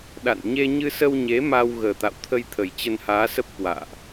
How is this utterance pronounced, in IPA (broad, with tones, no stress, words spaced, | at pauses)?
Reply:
ɗa̰˧˨n ɲe˧ɲɨ˧sə˧wɲe˨˦ ma˧w ɣəː˨˩t̪a̰˧˨wt̪ʰə˧jt̪ʰə˨˩j t͡ɕə˧nhaː˨˦sə˦˥p̚ kwa̰ː˧˨ʔ